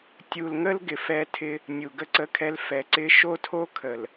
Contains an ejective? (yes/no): no